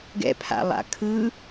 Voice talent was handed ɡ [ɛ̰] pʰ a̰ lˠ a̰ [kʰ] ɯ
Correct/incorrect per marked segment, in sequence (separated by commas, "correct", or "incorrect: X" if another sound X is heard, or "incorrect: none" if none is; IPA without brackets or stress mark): correct, correct